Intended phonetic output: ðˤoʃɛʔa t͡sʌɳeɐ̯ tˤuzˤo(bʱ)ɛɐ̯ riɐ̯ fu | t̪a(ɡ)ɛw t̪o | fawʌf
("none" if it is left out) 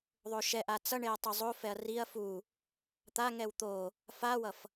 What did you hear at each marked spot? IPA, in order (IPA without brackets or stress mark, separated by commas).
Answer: f, ŋ